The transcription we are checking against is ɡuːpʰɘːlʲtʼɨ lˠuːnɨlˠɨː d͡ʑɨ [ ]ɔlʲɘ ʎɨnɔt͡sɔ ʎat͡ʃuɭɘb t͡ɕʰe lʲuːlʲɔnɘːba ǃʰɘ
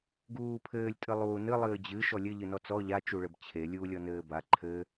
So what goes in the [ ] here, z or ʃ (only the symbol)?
ʃ